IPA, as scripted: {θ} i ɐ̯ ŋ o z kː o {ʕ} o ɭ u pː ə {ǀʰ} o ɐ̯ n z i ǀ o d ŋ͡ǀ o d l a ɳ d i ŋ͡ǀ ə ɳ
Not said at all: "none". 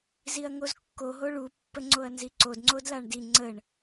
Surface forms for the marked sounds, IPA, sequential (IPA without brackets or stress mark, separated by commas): z, ɦ, ŋ͡ǀ